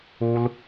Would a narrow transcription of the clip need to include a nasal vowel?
no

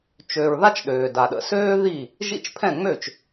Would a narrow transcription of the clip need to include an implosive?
yes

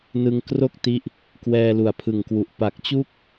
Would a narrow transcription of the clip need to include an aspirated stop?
yes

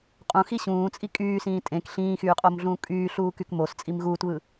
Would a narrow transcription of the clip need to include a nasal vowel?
yes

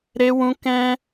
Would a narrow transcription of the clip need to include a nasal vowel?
yes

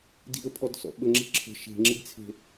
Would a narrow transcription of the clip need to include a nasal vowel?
no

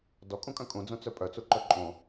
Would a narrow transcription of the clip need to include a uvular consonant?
no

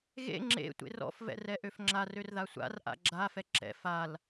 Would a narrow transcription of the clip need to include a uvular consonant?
no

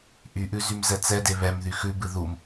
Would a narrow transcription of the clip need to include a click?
no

